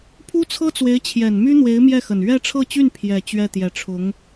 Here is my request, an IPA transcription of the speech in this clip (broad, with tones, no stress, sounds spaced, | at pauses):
pʰ u˥ t͡sʰ ɤ˥ t͡s w e˧˥ ɪ̯ t͡ɕʰ j ɛ˨˩ n m y˥ n̪ w e˧˥ ɪ̯ m j ɛ˥˩ x ə˨˩ n ɥ ɛ˥˧ ʈ͡ʂʰ ɤ˥˧ t͡ɕ y˥˩ n pʰ j ɛ˨˩ t͡ɕ ɥ ɛ˥˩ t̪ j ɛ˨˩ ʈ͡ʂʰ ʊ˧˥ ŋ